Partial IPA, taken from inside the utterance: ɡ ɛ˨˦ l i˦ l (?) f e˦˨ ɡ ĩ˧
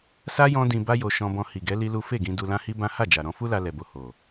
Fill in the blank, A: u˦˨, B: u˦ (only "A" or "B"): B